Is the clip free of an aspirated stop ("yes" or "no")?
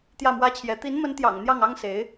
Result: no